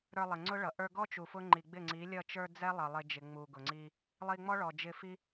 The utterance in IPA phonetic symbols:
ɾə˞˧lˠɪ˨ŋ͡ǀʊ˦ɭʌ˨ ʔə˞˧ɡɔ˦ t͡ʃu˨fʊ˦ ŋ͡ǃi˨ɡ͡bɪ˦˨ŋ͡ǀi˨˦lʲʌ˦˨ t͡ʃə˞˧ d͡zɛ˦lˠʌ˨ lˠɪ˧d͡ʒɪ˨ ŋ͡mu˨ɡʊ˨ŋ͡ǀi˧ | lˠi˧ŋ͡mɔ˦ ɭɔ˨d͡ʒɪ˧fi˦

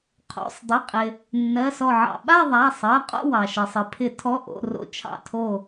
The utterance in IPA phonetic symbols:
qʰo̰˩˧˩sˤdˤɪ˩˧˩qʼɪ˩ | nːɜ˩˧˩sɔ˧˩ʕɑ̰˧˩ ɓa˥˧ðˤa˩˧˩ sˤɜ˩˧˩qʼo̰˥˧wɑ˩ʃɜ˩sˤ ɪ˩pʰɪ˨˩˦tʰɔ˩˧˩ ʔo̰˩˧˩ro̰˧˩ t͡ʃʰɑ̰˧˩tʰo˧˩

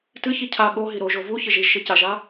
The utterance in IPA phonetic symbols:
tɨçi cʰa ɠoɦi ɾoʒo vu çɪʒiʒʃɪ caʒa

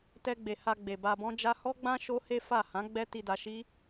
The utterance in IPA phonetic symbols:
tɛ˧ɡ͡be˨ ha˧ ɡ͡be˨ ba˧bɔ̃˦ d͡ʒa˦ hɔ˦ɡ͡bã˦ ʃo˦he˦ fa˦˨ hã˨˦ ɡ͡bɛ˦ ti˧da˧ʃi˦

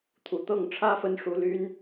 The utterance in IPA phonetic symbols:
t̪ʰu˨˩t̪ɤ˥˩ŋ ʈ͡ʂʰä˥ fə˥nʂu˧˥ ly˥n

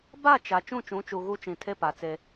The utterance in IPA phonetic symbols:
ba˦˨ t͡ʃa˨ t͡ʃũ˦˨t͡ʃũ˨˦t͡ʃu˨ ɣu˦t͡ʃĩ˨tʰe˦ pa˨t͡se˦

